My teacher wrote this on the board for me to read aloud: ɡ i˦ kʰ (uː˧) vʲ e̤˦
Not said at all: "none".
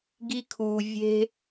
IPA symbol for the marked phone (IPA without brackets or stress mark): uː˧